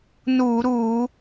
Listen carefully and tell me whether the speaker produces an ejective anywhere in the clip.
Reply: no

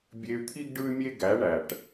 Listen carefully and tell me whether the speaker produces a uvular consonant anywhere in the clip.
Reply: no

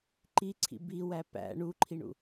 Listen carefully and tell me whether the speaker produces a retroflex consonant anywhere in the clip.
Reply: yes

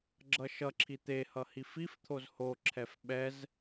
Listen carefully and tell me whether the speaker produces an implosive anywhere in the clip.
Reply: yes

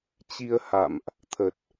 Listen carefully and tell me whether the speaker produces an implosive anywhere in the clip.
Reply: no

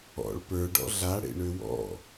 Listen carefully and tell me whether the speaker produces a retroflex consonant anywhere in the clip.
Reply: yes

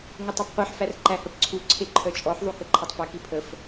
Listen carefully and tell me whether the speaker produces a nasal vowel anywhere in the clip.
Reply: no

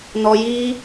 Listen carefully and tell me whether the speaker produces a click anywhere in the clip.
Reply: no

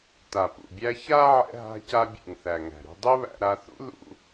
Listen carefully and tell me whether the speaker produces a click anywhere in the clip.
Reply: no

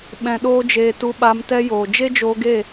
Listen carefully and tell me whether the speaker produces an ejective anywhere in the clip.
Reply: no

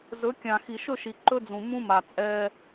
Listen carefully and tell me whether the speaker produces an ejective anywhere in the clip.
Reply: yes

